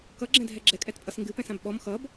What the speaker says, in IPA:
k ʌ ɡ͡ǁ ɛ̃ dʱ ɛ ɡ͡ǁ ɛ kʼ ɛ t pʼ ʌ s ŋ ɡ ɨ p ɛ̃ s ã b ɓ ɔ m x ʌ b

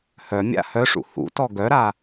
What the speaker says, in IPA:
h œ mʲ a̰ h œ ʂ ṵ h ṵ t ɔ ɡ œ ɾ a

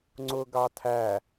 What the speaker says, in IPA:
ŋ͡ǀ ʊ ɡ ɑ tʰ æ

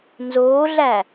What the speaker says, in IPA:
n z oː ɮ æ

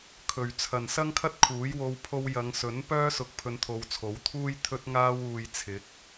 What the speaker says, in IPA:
kʰ ɵ˨ ɥ t͡sʰ ɐ˨ n s ɐ˥ ŋ kʰ ɐ˥ t̚ kʰ uː˨˥ j w o˧ w pʰ o˧ w j ɐ˨˧ ŋ s ɵ˨˥ n p œː˥ s ʊ˧ k̚ pʰ ɵ˧ n t̪ʰ o˨˧ w t͡sʰ o˨˥ w t̪ʰ uː˥ j t̪ʰ ɵ˥ t̚ ŋ aː˥ w uː˧ j t͡sʰ ɪ˨˥ k̚

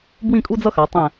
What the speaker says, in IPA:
b w ĩ˥˧ kʼ u˥ d͡z ʌ˥ x a˩˧ tˤ ɛ̃˧˩

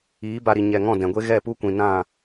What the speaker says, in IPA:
iː˨˦ b a˧ ɾ i˨ ɲ ɛ˨ ŋ ɔ̃˦˨ d ɛ̃˨ ɡʷ e˦ ɣ ɛ˦˨ p u˦ kʷ ĩ˨ n ã˦˨

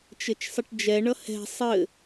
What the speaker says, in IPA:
t͡ʃ ɘ t͡ʃ sˤ ə ʈ d͡ʒ ɛ ɳ ʌ h ɛ̤ sˤ ɘ

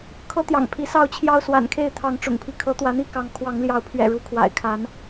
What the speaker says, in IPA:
kʰ ɤ˦ t̪ j ɑ̰˨˩ ŋ pʰ i˨˦ s ɑ˥˨ ʊ̯ t͡ɕʰ j ɑ˦ ʊ̯ s w a̰˨˩ n kʰ e˥˨ ɪ̯ t̪ʰ ɑ˨˦ ŋ ʈ͡ʂ ʊ̰˨˩ ŋ pʰ i˦ kʰ ɤ˨˦ t̪ w ä˨˦ n̪ i˥˨ k ɑ˨˦ ŋ kʰ w ɑ˨˦ ŋ l j ɑ˨˦ ʊ̯ pʰ ɥ ɛ̰˨˩ ɻ u˨˦ kʰ w a̰˨˩ ɪ̯ kʰ a˨˦ n

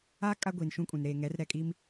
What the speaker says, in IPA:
aː˦ kʼ a˦ ɡʷ iː˨ n ʃ ũ˦ kʼ ũ˨ n ɾ eː˨ ŋ ɛ˨˦ r ɾ ɛ˨ kʼ iː˦ m

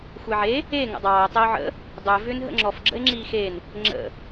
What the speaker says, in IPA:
xʷ e ʕ e | e ŋ ə̰ dˤ ɑː o̯ tˤ ɛ o̯ ʕ ə̰ | dˤ ʏː v ʏː n ɦ ə̰ ŋ͡ǁ ɔ f ɡ͡ǁ ə̰ e̯ ŋ͡ǁ iː x e n | ŋ͡ǁ ə̰

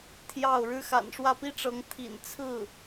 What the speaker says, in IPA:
t̪ʰ j ɑ˥˩ ʊ̯ ɻ ɻ̩˥ x a̰˨˩ n ʂ w ä˥˩ p i˥ ʈ͡ʂ ɤ˧˥ ŋ t̪ʰ ḭ˨˩ n t͡sʰ ɹ̩˥˩

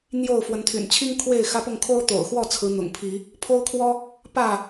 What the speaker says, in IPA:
n̪ j o˥˨ ʊ̯ f w ə˨˦ n t̪ʰ y̰˨˩ n t͡ɕʰ i˦ ŋ kʰ w e˥˨ ɪ̯ x ä˦ p ʊ˥˨ ŋ kʰ o˦ ʊ̯ t̪ o̰˨˩ ʊ̯ x w ɔ˥˨ t͡sʰ ɹ̩˨˦ n̪ ʊ̰˨˩ ŋ pʰ i˨˦ | pʰ o˦ ʊ̯ kʰ w ɔ˦ | p ä˥˨

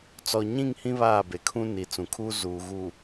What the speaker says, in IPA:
t͡s ɔ˨ ɲ ĩ˦˨ ŋ h ĩ˦ β aː˦˨ b e˨˦ kʰ ũ˦ n i˨˦ t͡s ũ˨ kʰ uː˦ z uː˨ ɣ u˨

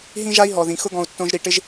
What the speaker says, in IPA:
ɦ ĩ˦ ʒ a˦ i̯ ɦ ɔ˨ ð ĩ˨ x ʊ˦ ɡ ɔ̃˧ u̯ tː õ˦ ʒ ɾ i˧ ʈ ɪ˦ ʒ

